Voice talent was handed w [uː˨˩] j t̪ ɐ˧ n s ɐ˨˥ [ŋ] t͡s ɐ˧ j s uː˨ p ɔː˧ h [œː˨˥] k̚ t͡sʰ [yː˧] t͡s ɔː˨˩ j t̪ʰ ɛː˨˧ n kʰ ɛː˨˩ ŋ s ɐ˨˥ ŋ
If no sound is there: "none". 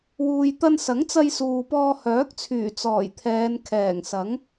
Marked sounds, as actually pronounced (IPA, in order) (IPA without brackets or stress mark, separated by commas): uː˨, ŋ, œː˨˥, yː˨˩